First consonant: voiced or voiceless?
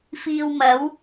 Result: voiceless